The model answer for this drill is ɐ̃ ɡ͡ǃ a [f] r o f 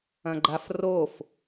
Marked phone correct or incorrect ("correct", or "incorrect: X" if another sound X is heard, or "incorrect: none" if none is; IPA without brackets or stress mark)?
correct